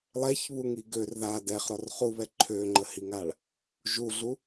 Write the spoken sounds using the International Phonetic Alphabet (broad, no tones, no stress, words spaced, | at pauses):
lˠɛçβuŋi ɡør ða dɛχɾɔr χuβɛ ǃʰøŋ͡ǃəhiŋaɭ | ʒuɮu